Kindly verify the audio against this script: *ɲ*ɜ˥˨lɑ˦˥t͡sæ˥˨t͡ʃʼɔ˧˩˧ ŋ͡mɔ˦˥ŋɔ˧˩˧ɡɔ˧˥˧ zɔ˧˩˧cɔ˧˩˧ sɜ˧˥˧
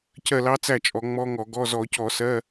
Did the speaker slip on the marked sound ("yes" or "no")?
yes